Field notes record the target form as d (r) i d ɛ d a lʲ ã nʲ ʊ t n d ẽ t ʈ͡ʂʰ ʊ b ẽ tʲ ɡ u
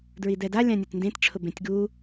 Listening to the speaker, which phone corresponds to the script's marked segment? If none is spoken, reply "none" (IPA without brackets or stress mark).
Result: ɹ